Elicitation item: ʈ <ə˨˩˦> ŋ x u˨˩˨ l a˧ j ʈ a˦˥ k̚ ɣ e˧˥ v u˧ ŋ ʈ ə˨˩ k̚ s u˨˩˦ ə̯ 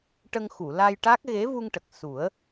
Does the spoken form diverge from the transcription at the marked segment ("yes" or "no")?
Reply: yes